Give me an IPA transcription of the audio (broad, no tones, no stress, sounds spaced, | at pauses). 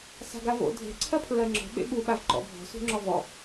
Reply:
s a̤ ɡ a v o̰ dʱ e̤ ǀʰ ɜ pʰ ɹ ɜ ŋ͡ǁ ɔ̤ ɓ ḛ ɓ u ɓ a v ǃ ɔ̰ bʱ ɔ̤ s ṳ ŋ͡ǁ ɔ v ɔ